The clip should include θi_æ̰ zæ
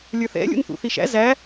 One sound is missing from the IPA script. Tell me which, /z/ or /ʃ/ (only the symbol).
ʃ